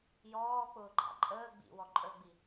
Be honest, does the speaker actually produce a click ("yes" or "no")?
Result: yes